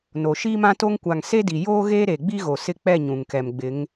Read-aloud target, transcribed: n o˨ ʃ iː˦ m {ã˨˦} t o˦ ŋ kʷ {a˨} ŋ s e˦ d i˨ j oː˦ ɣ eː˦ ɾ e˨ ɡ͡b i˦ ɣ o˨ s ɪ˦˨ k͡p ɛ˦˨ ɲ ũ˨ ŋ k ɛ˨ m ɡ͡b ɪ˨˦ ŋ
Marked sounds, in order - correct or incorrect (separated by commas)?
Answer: incorrect, correct